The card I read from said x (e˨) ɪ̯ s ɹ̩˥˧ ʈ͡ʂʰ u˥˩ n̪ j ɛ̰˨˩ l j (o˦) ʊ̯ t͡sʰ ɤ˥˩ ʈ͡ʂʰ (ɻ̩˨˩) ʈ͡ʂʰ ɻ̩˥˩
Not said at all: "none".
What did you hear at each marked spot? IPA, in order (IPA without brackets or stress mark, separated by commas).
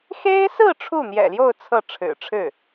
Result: e˥, o˥˧, ɻ̩˨˩